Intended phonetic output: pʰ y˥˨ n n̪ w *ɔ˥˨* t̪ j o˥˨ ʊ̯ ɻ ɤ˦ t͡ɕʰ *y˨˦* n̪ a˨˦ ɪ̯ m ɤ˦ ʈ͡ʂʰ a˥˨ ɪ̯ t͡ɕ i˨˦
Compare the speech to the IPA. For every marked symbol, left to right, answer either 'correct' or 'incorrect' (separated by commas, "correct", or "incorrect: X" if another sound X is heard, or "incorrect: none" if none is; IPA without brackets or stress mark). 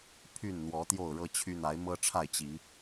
incorrect: ɔ˨˦, incorrect: y˦